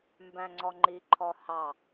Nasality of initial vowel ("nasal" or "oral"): nasal